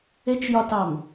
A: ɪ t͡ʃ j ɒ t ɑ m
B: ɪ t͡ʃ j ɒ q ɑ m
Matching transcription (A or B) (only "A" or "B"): A